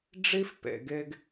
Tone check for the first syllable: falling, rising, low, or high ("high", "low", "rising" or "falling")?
high